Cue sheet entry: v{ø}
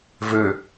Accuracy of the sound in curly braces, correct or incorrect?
correct